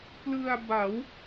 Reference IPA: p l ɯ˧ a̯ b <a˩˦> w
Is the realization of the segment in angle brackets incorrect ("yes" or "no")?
no